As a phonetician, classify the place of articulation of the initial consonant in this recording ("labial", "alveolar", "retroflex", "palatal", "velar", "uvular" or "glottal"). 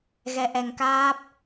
velar